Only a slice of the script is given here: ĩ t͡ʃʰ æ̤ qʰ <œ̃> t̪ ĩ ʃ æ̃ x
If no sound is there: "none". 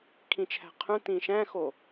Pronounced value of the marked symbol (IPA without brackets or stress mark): œ̃